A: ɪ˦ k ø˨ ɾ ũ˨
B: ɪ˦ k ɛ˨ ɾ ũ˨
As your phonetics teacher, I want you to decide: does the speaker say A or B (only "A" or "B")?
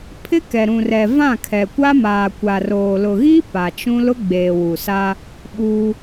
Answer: B